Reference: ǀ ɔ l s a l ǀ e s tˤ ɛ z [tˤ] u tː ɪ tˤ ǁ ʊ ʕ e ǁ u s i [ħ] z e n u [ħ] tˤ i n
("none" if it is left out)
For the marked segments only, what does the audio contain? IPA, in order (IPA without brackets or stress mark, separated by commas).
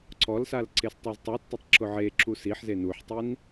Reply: tˤ, ħ, ħ